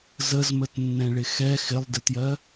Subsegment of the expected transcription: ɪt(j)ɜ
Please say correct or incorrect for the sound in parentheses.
correct